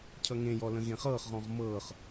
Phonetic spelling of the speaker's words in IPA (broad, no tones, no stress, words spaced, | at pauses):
cʰʌŋẽ jɔlə̃ɣẽχɤːχ ʁɔ̃ʁmɤːχ